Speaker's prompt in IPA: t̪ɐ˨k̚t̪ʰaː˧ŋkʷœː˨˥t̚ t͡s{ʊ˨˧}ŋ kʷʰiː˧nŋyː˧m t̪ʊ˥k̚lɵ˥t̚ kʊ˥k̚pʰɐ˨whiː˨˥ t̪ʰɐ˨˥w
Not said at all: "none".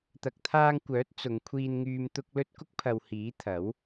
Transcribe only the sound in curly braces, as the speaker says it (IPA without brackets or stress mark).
ʊ˨˧